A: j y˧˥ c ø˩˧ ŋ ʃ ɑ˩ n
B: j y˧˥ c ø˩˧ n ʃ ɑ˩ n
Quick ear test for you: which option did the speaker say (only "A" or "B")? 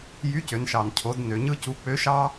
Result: B